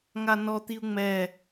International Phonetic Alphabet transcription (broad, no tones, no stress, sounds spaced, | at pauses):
ŋ a n ɔ t̪ i u̯ ŋ͡m ɛ